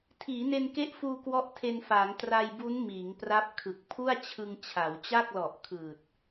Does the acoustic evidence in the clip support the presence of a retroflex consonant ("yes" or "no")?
no